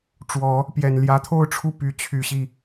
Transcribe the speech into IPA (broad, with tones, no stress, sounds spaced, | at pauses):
ʈ͡ʂ w ɔ˨˩˦ | p j ɛ˨˩ n l j ä˧˥ t̪ʰ o˥˧ ʊ̯ ʈ͡ʂʰ u˥˩ p y˧˥ t͡ɕʰ y˨˩ ɕ i˥˩